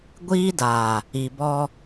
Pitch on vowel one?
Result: high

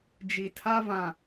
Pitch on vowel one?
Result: low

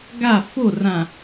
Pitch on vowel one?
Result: falling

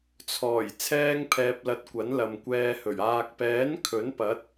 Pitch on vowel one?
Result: low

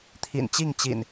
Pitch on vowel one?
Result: low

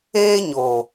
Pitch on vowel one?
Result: high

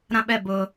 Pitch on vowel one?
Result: high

